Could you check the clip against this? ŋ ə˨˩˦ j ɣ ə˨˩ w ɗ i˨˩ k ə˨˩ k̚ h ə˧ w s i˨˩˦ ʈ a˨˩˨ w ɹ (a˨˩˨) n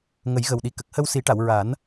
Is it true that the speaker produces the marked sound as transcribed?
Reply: no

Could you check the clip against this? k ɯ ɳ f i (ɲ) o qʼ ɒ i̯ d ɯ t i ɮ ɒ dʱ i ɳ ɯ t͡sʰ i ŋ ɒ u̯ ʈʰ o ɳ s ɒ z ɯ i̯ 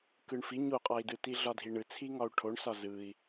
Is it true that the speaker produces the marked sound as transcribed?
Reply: yes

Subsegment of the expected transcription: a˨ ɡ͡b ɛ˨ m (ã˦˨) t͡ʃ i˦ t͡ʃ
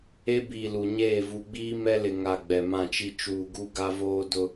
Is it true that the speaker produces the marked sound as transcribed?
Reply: yes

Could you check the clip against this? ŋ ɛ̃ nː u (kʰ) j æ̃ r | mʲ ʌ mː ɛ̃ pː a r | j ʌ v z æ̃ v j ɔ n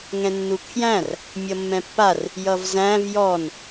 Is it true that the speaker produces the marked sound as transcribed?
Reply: yes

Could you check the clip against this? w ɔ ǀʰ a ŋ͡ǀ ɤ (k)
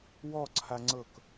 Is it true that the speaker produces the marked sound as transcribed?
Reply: yes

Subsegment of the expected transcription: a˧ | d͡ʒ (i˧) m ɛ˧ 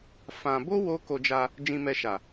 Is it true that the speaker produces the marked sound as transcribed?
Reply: no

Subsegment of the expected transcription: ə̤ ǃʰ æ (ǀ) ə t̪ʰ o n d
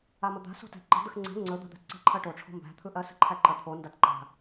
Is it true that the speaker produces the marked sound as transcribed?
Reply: no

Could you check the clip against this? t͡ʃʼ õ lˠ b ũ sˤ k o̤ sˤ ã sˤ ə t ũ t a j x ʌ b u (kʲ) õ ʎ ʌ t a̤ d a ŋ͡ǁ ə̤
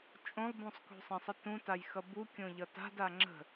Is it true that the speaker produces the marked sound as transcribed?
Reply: yes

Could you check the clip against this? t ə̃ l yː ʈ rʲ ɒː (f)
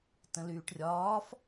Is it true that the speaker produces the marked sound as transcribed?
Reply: yes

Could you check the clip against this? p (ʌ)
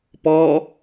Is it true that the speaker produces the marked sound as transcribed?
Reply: no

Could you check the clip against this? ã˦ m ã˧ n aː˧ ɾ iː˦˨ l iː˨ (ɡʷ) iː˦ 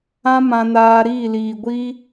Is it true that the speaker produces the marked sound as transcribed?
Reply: yes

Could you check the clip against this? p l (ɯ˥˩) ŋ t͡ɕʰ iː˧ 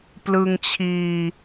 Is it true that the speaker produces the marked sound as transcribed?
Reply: no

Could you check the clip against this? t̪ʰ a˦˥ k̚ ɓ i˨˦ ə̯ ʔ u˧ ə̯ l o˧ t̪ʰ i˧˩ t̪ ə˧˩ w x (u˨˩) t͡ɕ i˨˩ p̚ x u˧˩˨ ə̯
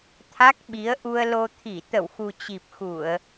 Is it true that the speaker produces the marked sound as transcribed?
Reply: yes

